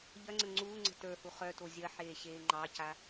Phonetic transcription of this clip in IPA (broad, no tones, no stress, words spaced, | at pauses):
ʎɐŋ͡ǀə ŋ͡ǀuːŋ͡ǀə̤ tə˞hu χœto zʲɐħeːɕeː ŋ͡ǃɑca